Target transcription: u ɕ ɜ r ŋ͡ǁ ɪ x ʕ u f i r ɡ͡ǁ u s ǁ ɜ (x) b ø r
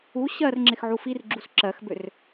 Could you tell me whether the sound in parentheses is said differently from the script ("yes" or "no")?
no